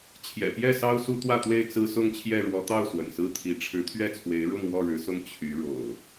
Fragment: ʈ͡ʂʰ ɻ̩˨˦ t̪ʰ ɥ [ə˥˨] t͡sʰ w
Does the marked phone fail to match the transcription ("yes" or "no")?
yes